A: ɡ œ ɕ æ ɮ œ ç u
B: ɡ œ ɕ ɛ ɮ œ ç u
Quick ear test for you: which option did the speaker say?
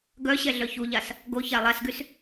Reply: B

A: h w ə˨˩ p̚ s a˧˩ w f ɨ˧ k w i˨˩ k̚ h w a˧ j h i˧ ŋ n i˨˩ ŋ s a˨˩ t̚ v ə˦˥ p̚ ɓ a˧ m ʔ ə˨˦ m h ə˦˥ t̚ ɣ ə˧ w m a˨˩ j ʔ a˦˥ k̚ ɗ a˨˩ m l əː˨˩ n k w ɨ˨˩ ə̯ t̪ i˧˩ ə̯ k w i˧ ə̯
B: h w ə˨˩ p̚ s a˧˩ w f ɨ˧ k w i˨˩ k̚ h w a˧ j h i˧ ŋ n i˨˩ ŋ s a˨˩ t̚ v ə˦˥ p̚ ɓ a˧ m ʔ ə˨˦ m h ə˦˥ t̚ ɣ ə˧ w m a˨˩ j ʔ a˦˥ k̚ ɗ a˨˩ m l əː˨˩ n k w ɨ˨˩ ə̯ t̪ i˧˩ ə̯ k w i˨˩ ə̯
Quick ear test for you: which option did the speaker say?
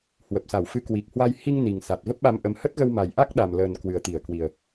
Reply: B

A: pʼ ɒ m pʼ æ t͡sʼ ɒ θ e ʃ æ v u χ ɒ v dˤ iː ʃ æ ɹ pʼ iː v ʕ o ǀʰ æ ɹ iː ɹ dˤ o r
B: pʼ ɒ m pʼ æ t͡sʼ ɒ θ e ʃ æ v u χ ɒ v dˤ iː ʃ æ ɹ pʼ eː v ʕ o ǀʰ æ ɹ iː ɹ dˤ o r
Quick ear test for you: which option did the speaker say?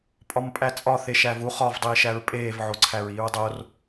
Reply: B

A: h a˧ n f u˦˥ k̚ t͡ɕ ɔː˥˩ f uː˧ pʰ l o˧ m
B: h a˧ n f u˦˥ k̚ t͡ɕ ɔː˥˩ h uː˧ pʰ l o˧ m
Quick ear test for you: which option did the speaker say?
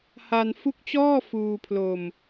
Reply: A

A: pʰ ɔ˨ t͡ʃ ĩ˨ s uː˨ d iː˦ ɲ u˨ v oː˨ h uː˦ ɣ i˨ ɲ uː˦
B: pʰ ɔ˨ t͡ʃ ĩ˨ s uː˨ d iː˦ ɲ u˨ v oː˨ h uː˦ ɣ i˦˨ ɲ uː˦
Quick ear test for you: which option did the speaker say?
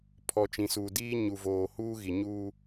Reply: A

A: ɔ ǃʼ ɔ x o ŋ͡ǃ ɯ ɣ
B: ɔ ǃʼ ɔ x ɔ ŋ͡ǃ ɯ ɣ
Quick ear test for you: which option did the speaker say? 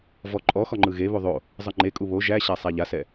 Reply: B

